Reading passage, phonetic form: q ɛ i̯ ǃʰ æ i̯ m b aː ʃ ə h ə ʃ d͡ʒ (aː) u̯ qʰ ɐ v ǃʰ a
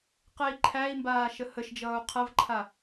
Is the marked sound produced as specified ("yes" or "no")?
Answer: no